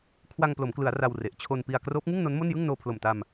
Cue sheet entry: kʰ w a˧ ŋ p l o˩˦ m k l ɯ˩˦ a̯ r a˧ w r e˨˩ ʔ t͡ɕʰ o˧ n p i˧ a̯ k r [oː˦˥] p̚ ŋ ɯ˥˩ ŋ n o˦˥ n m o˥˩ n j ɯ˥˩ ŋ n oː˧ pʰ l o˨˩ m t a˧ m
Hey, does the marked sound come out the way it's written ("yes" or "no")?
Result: yes